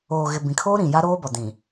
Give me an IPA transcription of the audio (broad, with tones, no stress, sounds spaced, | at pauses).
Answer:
oː˨ ɣ ɪ˨ b ĩ˨ kʰ oː˦ ɾ ĩ˨ j a˦ ɾ oː˦ b ɔ˨ d ĩ˨